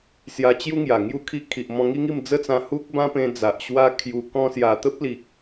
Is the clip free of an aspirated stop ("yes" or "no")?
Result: no